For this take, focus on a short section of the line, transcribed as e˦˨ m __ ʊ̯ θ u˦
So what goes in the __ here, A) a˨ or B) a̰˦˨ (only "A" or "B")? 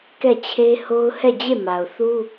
A